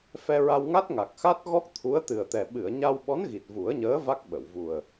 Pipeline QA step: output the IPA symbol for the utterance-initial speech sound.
f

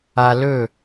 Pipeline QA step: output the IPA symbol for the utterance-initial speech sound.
a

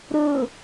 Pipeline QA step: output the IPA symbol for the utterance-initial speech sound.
ɾ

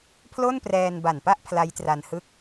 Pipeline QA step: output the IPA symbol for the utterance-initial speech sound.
pʰ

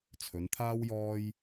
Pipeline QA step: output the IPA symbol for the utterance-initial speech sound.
t͡sʰ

